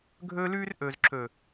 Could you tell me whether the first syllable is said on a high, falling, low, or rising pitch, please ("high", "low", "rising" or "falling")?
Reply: high